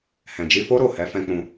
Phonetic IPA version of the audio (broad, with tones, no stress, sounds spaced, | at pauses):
h ɛ̃˨ d͡ʒ i˧ f o˦ ɾ o˦˨ h ɛ˨˦ f ɛ̃˧ k͡p ũ˧